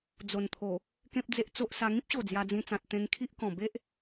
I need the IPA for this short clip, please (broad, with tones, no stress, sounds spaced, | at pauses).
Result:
d͡z o˨˩ n t̪ʰ o˨˩ | k ẽ˦ p̚ d͡z e˦ ʔ t͡s o˦ ʔ s a˧ ŋ ĩ˦ p̚ ɕ o˨˩ d͡z j a˧ d͡z ĩ˧ t͡s ã˨ t̚ t̪ ẽ˧ ŋ kʰ i˦ ʔ k ɔ̃˨˩ b e˦ ʔ